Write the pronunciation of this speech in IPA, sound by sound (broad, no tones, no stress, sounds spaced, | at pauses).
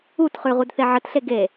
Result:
u t χ ʉ ʁ u d θ e ʕ ə t ɬ e ɡ e